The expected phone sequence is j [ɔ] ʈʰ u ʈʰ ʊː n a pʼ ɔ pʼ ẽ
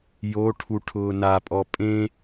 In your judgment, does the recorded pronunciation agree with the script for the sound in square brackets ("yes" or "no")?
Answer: no